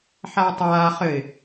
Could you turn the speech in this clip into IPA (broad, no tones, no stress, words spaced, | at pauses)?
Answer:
ħaʊ̯tˤaː χɘɪ̯